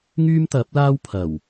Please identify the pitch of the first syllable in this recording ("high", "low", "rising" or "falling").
high